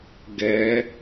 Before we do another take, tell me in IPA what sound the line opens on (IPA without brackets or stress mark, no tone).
ɡ